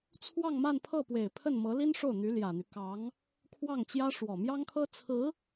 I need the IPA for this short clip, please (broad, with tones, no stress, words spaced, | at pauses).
t͡sʰwɑ˥˧ŋma˥˧n pʰɤ˥˩pwe˨˩ɪ̯pʰə˥˩n mɤ˧˥li˥nʂo˥˩ʊ̯ n̪y˧˥ljä˨˩n̪y˦ kɑ˧˥ŋ | kʰwɑ˥˩ŋt͡ɕjä˥ ʂwɔ˨˩mjɑ˥ŋkʰɤ˥ t͡sʰɹ̩˧˥